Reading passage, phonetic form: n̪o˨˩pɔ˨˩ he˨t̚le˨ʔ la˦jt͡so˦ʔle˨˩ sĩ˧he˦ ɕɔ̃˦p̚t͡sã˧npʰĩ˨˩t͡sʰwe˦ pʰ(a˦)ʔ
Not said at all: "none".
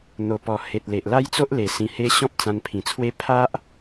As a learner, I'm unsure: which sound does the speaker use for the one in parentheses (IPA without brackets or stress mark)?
a˦